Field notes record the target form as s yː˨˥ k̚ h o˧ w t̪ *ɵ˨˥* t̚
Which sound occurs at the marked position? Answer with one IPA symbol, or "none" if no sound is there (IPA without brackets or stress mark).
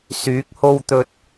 ɵ˨